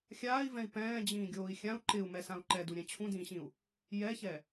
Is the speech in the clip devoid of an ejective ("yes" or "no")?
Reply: yes